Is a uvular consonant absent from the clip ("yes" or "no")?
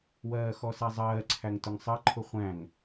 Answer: no